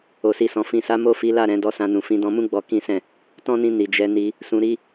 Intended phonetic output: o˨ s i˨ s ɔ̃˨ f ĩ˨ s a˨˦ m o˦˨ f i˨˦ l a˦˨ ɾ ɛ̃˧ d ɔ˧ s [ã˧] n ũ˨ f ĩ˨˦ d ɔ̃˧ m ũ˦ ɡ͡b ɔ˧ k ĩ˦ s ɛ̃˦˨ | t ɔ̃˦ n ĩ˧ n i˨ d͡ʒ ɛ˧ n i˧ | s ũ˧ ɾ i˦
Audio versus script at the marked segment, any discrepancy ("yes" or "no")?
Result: no